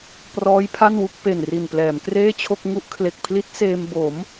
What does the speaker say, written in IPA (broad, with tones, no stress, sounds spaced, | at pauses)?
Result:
p r ɔː˦˥ j pʰ a˥˩ n w u˥˩ k̚ p e˨˩ n r i˨˩ n p l ɛː˩˦ m k r eː˥˩ t͡ɕʰ o˥˩ k̚ ŋ u˦˥ ʔ kʰ l e˨˩ k̚ pʰ l i˦˥ t̚ s eː˧ m b o˩˦ m